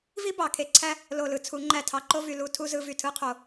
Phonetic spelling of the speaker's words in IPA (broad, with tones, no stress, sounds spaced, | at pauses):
v i˥ b ɑ˩˧ kʰ e˧˩ ǀʰ æ˥ | l o˧˩ l ɯ˩˧ t͡sʰ u˩˧ ŋ͡ǃ æ˧˩ tʰ ɑ˧˩ ǃ o˥˧ v y˧˩ l u˧ tʰ u˧ z ɯ˧ v y˧˩ tʰ ɯ˥ qʰ o˧